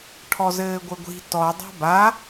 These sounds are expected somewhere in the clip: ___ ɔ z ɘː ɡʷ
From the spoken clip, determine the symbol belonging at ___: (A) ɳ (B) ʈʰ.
B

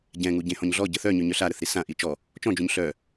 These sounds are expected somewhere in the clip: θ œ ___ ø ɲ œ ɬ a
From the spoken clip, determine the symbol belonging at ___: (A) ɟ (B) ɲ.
B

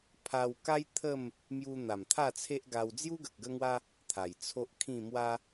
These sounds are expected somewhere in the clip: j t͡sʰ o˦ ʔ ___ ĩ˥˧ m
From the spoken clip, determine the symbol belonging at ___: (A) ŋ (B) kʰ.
B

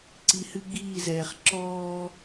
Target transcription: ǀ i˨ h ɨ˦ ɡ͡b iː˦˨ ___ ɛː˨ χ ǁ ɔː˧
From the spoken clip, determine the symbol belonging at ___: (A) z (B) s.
A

